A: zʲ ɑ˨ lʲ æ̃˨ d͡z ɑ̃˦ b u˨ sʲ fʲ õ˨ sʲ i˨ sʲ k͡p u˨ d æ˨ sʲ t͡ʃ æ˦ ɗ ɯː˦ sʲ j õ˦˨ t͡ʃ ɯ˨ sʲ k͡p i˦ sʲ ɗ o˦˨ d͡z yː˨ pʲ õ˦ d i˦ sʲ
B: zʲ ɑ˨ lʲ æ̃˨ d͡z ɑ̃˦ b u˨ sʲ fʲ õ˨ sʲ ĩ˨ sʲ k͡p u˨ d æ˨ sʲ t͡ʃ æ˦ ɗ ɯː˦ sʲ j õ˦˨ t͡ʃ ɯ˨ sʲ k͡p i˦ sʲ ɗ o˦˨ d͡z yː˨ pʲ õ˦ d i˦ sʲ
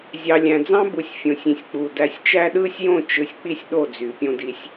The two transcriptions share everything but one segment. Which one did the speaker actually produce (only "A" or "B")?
B